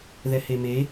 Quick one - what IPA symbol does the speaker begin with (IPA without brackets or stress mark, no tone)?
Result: ð